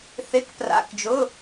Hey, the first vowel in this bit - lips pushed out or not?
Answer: no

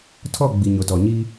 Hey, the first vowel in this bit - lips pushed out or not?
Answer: yes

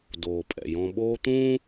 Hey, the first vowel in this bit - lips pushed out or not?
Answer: yes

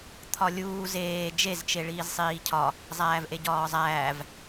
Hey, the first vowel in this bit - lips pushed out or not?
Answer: yes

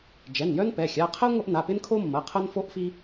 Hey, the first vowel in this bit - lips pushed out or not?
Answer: no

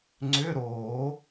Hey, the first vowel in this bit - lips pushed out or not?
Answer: yes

